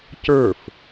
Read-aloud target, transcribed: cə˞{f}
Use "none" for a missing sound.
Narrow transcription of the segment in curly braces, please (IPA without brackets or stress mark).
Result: f